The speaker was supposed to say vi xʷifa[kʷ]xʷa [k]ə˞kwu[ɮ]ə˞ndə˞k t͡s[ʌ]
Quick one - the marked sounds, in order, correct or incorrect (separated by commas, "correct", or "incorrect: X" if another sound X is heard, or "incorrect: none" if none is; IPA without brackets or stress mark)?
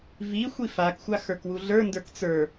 incorrect: k, incorrect: x, correct, incorrect: ə˞